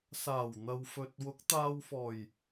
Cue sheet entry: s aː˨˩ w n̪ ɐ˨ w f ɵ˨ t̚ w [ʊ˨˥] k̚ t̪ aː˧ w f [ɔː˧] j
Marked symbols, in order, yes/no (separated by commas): yes, no